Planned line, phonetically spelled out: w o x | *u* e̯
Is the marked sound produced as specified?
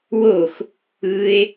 no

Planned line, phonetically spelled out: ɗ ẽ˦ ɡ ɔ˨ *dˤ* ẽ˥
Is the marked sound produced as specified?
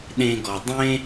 yes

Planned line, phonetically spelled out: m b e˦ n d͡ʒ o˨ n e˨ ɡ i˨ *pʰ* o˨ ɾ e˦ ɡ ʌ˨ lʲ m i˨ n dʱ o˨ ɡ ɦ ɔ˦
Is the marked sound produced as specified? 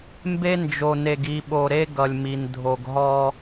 no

